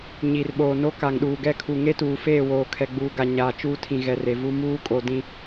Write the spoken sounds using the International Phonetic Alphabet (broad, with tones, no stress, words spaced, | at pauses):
ɲi˨rɓoː˨no˦ ka˨ŋɗuː˨ɡɛ˦kʰu˨ ŋe˦tuː˨feː˦˨woː˨ kʰɛ˨ɡ͡buː˨ɡa˨ ɲaː˨t͡ʃuː˦tʰĩ˨ ɣɛ˨re˨vu˦ muː˦kʼo˨ dĩ˦